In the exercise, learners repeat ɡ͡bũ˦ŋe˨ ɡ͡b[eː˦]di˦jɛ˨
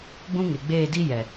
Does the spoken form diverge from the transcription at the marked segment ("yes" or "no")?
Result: yes